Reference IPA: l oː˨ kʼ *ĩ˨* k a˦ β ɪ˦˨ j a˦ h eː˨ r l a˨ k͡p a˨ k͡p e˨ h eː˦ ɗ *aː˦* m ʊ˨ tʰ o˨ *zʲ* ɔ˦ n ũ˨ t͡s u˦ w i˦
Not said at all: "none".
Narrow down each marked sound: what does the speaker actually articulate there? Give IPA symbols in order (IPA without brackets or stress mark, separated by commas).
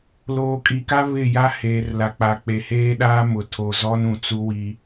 i˨, aː˦, z